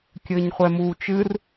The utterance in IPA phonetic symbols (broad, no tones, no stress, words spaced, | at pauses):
kʲɘːɲχʷɛmuːt͡ʃɨr